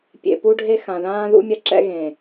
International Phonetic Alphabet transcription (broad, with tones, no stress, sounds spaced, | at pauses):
pʲ ḛ˨ p u˦ ɖʱ e˦ x ã˨ ð ãː˦ ð ṵ˦ mʲ ɐ˦ ǁ ɛ̰˦ ɣ ẽ˨